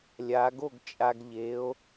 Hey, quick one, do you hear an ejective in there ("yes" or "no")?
yes